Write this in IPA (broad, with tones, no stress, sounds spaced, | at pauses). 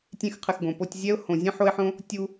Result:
tʲ ẽ˧ x qʰ ɨ˨ x ɡ õ˨ p o˧ tʲ zʲ ɛ˦ ʊ̯ h õ˨ zʲ ẽ˦ ħ o˦ ɪ̯ ħ õ˦ | tʲ u˧